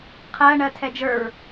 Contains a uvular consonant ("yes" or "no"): yes